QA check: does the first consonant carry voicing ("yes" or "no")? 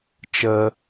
no